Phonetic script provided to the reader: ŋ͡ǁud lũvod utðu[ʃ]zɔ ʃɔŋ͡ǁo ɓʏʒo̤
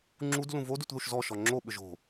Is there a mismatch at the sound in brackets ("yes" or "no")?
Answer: no